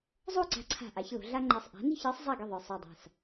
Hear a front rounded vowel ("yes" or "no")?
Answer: no